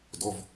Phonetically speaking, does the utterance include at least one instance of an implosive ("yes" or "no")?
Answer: no